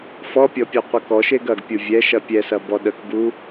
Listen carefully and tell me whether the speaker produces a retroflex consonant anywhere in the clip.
no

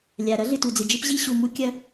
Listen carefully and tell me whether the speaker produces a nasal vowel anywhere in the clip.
no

